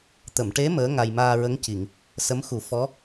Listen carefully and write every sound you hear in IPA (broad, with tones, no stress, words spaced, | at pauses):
t̪ə˨˩˨mʈe˧˥ məː˧˥ ŋa˧j maː˧ɹə˧˥ŋci˨˩˨ŋ | sə˧˥mxu˨˩˦ fɔ˧˥